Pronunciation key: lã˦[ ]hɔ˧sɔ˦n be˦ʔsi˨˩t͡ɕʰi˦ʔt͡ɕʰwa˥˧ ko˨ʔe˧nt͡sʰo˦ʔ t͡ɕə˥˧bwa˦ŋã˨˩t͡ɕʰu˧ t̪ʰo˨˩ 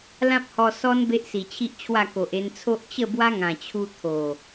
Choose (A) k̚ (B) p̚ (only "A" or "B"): B